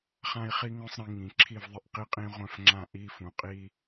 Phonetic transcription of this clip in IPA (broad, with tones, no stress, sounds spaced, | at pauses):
χ ã˦ i̯ χ i˦ ŋ œ̃˦ sˤ ɾ ĩ˩˧ ŋ ĩ˩˧ ǁʰ i˦˨ v ðˤ ɪ˦˨ ʔ q i˦ qʼ ĩ˦ ʁʷ œ̃˦˨ f ŋ͡ǁ ã˦˨ ʔ i˦ f ũ˩˧ qʼ i˦